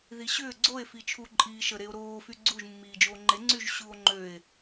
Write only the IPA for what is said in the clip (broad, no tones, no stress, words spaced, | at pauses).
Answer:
ðiɕʏː ɡ͡ǀoe̯ fit͡ʃʰu ǃʼiːʃə ɾeo̯ɾoː fyɡ͡ǀuʒ mːiːd͡ʒoːŋ͡ǃe ŋ͡ǀyʒɕuo̯ ŋ͡ǃøe̯